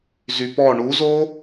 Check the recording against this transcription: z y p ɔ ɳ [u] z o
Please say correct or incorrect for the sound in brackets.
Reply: correct